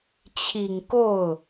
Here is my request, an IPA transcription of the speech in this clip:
t͡ɕʰ i˨˩ ŋ k o˥˩ ʊ̯

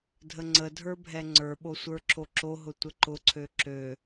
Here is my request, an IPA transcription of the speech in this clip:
dʱ ə ŋ͡ǀ ə dʱ ə˞ bʱ ɛ ŋ͡ǀ ə˞ ɓ o sʷ ə˞ ǁ o ǁ o ɦ ʊ tʷ ə ǃ ʊ ǀʰ ø ǁ ø

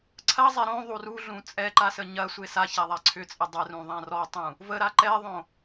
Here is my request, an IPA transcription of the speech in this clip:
ǀʰ ɐ zˤ ɛ ɾ õ ðˤ u r u ɮ ũ t͡sʼ ɛ ǃ a s ə ɲ ɐ sʷ e s a ç a ðˤ a ǀʰ ʏ t͡sʼ ə dˤ ə r ũ ðˤ ã r ɔ tˤ ũ | v ə ɾ a ǃ ɛ ðˤ õ

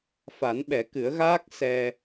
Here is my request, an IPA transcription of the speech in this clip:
f a˨˩˦ n ɓ ɛ˨˩˦ k ɨ˨˩˦ ə̯ ɣ aː˦˥ k̚ s ɛ˧

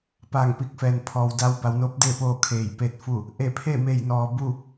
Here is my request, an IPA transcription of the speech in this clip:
p aː˧˩ ŋ p i˧˩ k̚ f ɛː˩ n pʰ ɔː˩ w d a˧ w b a˩˧ w n oː˧˥ p̚ d eː˥˨ p oː˥˨ kʰ eː˧˩ j p e˥˨ t̚ f u˥˨ | ʔ e˧˩ pʰ e˥˨ m e˧˩ j n ɔː˩ b u˥˨

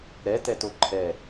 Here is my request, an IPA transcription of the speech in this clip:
ɾ ɛ t ɛ t o ǃʰ ɛ

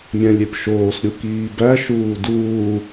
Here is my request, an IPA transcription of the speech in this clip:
mʲ æ̃ lʲ e p ʃ oː s ɾʲ u k iː b æ ʃ uː d uː

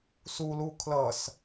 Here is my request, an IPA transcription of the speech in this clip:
s u l u kʰ l ʌ s

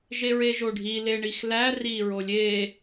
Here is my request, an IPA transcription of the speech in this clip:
ʒ e ɹ e ʒ o ɖʱ i l e ɳ i x l æ r i ɹ o lʲ e

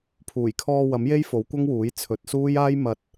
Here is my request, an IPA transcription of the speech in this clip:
pʰ uː˨˩ j kʰ ɔː˧ w ɐ˨˥ m j e˥ j f o˨˥ w kʷ ɐ˥ ŋ w uː˨˥ j t͡sʰ ɵ˨˥ t̚ s uː˥ j aː˥ j m ɐ˧ t̚

